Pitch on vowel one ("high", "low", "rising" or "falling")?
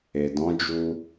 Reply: low